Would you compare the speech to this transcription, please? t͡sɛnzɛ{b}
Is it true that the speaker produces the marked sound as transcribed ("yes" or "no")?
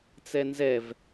no